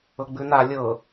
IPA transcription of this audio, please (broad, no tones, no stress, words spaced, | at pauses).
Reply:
ɤɡ͡bʉna lʲɤ